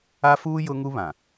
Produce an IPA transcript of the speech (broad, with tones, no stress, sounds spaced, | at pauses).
a˦ f uː˦ j ʊ˦ ŋ u˦ β ã˨